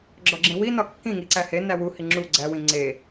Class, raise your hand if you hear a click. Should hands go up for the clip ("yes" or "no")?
yes